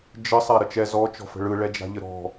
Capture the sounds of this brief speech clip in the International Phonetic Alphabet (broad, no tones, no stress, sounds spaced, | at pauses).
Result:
d͡ʒ ə sˤ a ɾ ə t͡ʃ ɛ z ɔ t͡ʃ ɔ̤ f ə̤ ɭ ɯ ɭ ɛ d͡ʒ a̤ ʎ ə ɾ ɔ̤